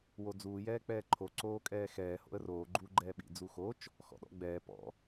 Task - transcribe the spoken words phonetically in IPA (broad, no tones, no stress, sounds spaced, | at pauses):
w o d͡z uː j ɛː k͡p ɛː ǃʰ o ǀ oː kʼ ɛː x ɛː h o̰ ə̯ r oː ɡ͡ǃ uː ɡ͡ǃ ɛː ɓ ḭ d͡z u x o t͡ʃ | x ɔ̰ ɗ ɔ̰ ɡ͡b ɛː p ɔ̰